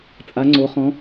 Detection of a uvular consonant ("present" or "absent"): present